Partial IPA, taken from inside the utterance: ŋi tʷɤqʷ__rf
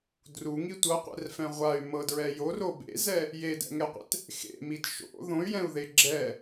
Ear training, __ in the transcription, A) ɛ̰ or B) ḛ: A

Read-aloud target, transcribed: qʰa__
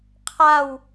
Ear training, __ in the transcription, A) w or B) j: A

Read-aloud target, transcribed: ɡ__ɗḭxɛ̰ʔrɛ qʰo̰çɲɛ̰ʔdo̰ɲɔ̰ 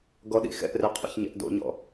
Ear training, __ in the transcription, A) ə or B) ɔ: B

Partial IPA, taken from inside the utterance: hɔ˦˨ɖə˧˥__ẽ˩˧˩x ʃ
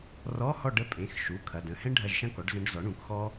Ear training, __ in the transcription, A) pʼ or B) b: A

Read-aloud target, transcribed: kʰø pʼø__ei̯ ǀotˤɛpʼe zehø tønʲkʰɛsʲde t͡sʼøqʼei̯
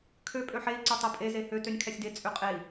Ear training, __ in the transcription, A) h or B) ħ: B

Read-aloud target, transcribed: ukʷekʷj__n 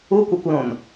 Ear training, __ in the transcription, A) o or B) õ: B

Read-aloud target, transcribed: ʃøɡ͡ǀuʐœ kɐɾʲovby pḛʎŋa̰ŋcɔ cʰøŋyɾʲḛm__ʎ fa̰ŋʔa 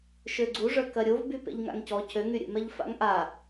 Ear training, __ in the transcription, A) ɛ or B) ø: A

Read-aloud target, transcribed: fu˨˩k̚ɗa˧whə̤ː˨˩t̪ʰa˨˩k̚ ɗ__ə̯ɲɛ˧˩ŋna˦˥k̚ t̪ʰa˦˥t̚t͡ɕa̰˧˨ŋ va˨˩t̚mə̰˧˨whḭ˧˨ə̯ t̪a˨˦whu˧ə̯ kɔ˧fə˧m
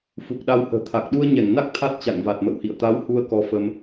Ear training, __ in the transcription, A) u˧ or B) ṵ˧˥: A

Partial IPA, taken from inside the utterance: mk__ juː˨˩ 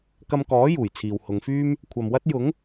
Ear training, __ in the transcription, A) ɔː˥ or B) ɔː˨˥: B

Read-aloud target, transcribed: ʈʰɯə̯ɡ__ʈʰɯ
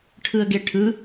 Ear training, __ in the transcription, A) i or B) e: B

